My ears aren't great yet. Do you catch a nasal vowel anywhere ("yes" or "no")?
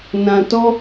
yes